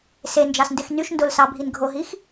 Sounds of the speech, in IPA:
s e n d͡ʒ ɑ s n d e x n y ʃ n d o l s ɑ bʱ i n ɡʱ o ɦ i x

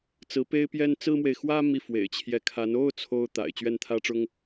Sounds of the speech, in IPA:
t͡s ɹ̩˧˥ p e˥ ɪ̯ p j ɛ˥ n t͡s ɹ̩˥ m w e˨ ɪ̯ x w ä˥ m i˥˩ f w ḛ˨˩ ɪ̯ t͡ɕʰ j ɛ˧˥ kʰ a˧˥ n o˥˩ ʊ̯ t͡sʰ o˥ ʊ̯ t̪ a̰˨˩ ɪ̯ t͡ɕ ɥ ɛ˥˩ n t̪ʰ ä˥ ʈ͡ʂ ʊ˥ ŋ

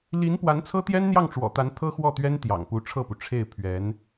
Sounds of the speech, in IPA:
l i˧˥ n p w a˧˥ n t͡sʰ ɤ˥ t̪ j ɛ˥ n n̪ j ɑ˥˩ ŋ ʈ͡ʂ w ɔ̰˨˩ t̪ a˧˥ n t̪ʰ ɤ˥ x w ɔ˥˩ t̪ ɥ ɛ˥ n t̪ j ɑ̰˨˩ ŋ p u˧˥ ʈ͡ʂʰ ɤ˥˩ p u˩ ʈ͡ʂʰ e˥˩ ɪ̯ pʰ ɥ ɛ˧˥ n

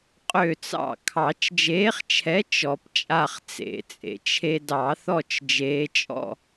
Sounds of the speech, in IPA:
qʼ ø˥˨ t͡s ɑ̰˥˨ kʰ ɑ˨˩˦ t͡ʃ d͡ʒ eː˨˦ χ t͡ʃʰ ɛ˨˦ t͡ʃ ɔ˨˩˦ p t͡ʃʼ a˥˨ χ t͡s ḛ˨˩˦ t͡sʼ ḛ˨ t͡ʃʰ e˦ d ɑ˨˩˦ θ ɔ˥˨ t͡ʃ d͡ʒ eː˨˦ t͡ʃʼ ɔ̰˥˨

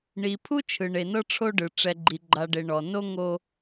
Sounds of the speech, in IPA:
ɳ i˨ pʰ u˦ t͡ʃʰ ɯ˨ ɳ e˨ n ɤ˦ ʈ͡ʂʰ o˦ ɖ ɯ˨ ʈ͡ʂ ɛ˨ ɡ͡ǃ i˨ ɡ͡ǃ a˨ ɖ e˨ ɳ ɔ˨ n o˦ ŋ o˦

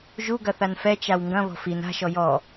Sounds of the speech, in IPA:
ʒ u ɡ ɐ θ a n f ɛ t͡ʃ a w ŋ ɡ ɐ̃ β ɔ̤ f i n a̤ ʃ ɔ j ɔ

